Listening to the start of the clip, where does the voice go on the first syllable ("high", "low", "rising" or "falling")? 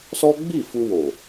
high